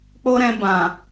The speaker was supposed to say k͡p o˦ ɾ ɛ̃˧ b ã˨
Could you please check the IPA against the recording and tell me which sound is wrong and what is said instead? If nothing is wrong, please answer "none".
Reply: none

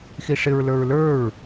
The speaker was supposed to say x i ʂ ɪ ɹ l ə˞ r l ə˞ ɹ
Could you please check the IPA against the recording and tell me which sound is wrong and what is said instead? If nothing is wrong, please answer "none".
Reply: r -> ɹ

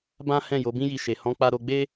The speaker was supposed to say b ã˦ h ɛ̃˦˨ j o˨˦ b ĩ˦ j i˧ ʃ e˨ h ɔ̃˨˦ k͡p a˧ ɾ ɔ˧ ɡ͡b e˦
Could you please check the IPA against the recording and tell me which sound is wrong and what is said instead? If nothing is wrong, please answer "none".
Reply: ɔ˧ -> o˧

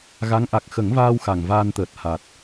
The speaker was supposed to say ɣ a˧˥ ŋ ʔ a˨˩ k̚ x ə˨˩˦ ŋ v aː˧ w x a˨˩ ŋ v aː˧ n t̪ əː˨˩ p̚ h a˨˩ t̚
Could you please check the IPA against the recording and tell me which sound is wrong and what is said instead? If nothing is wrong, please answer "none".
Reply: p̚ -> t̚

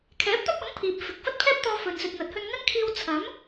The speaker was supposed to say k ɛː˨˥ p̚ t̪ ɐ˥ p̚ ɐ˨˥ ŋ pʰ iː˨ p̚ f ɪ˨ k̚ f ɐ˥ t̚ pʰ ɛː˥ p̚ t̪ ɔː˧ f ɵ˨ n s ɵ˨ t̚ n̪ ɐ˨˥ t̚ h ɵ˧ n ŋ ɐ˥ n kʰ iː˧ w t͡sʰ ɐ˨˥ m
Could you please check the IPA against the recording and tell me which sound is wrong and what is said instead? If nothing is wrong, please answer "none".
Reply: k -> kʰ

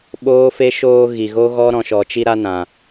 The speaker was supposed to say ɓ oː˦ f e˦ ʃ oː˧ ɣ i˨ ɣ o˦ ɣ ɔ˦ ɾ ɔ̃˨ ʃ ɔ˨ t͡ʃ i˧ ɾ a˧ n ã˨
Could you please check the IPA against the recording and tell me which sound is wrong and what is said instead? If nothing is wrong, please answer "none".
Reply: none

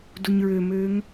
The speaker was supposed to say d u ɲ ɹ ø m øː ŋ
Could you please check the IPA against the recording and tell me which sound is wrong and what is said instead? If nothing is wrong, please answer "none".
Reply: none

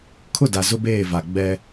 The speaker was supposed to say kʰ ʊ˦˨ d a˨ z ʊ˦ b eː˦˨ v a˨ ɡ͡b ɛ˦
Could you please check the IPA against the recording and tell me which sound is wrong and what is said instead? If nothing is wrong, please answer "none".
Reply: none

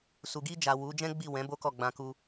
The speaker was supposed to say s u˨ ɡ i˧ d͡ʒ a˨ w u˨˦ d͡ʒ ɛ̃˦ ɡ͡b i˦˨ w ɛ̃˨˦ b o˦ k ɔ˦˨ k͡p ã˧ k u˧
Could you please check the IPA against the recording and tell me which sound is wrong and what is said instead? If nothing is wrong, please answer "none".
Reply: k͡p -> ɡ͡b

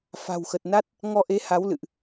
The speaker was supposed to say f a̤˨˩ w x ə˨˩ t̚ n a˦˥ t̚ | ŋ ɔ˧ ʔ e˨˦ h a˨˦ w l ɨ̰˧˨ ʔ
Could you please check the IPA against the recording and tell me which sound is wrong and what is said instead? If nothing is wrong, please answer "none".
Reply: none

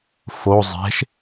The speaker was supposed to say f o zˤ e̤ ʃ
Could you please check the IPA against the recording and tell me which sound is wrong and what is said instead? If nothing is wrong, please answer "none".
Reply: none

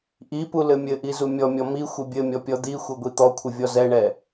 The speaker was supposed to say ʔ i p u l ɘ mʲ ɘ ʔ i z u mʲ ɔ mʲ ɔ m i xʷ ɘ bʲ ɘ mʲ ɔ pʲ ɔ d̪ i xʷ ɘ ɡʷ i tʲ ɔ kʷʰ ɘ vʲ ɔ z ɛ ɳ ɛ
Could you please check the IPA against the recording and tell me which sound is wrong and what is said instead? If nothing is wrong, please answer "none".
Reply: tʲ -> t̪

